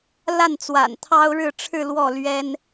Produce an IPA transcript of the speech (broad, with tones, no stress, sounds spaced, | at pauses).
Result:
l a˥˩ n t͡s w a̰˨˩ n t̪ʰ ɑ˥ ʊ̯ ɻ ɻ̩˥˧ ʈ͡ʂʰ ɻ̩˥˧ l w ɔ˥˩ l ɥ ɛ˥ n